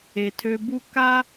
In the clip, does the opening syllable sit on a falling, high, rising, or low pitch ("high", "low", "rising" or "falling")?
low